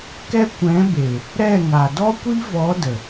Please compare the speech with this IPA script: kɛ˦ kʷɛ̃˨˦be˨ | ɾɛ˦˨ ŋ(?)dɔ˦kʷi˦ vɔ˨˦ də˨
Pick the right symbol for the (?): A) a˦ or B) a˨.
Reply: B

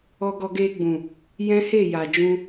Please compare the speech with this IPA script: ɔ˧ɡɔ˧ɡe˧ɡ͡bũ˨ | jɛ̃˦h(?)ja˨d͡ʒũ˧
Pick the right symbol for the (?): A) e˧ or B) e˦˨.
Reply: B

